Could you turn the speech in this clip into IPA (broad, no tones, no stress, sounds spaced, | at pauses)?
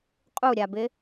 qʼ u ɾʲ a b ɪ